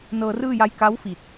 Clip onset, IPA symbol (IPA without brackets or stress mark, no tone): n